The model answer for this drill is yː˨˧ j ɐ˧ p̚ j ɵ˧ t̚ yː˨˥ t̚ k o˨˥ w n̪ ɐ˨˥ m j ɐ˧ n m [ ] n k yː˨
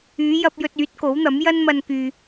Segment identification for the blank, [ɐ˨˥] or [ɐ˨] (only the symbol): ɐ˨